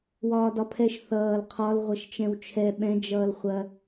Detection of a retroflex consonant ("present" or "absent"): absent